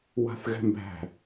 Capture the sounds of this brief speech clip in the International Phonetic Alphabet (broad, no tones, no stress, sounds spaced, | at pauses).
w a̤ θ ɣ ɛ̤ m b æ̤